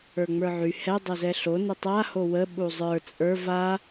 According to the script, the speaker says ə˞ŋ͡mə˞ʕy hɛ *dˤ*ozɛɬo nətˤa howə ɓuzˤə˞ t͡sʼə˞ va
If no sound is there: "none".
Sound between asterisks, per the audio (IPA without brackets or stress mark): dˤ